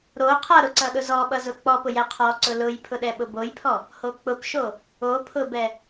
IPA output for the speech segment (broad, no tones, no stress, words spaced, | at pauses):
ɾo qʰʌɾʊǀʌ ɗʊzɔɓʌzʊ k͡pɔ pʊjɛ qʰɔǀʊ lʊjpʰʊ ɗɛɓʊbojpʰɔ | hok͡pʊpʃo | opʰʊbɛ